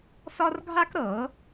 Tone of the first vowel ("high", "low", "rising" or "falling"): high